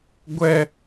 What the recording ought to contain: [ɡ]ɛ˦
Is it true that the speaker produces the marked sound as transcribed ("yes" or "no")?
no